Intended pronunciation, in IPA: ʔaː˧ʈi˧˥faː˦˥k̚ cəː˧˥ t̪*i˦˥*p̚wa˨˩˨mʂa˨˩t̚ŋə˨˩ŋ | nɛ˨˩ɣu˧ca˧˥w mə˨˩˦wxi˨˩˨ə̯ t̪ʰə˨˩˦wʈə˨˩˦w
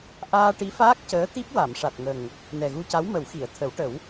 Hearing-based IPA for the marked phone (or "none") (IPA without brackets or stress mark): i˦˥